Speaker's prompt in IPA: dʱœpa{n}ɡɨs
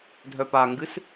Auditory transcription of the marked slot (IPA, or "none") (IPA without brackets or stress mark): ŋ